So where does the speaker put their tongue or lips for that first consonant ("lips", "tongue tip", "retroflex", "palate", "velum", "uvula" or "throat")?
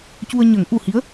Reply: palate